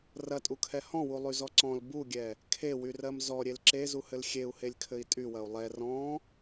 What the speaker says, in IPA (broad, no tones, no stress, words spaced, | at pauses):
rɐtʼukʰɛ hɔ̃wulˠyzɔ ǀɔ̃l buɡʲɛ | kʰewyrɜm zɔɾʲel ǁezuhɘl xʲeu̯helʲkʰɘi̯ tʼywɐu̯ lˠɛ rɔ̃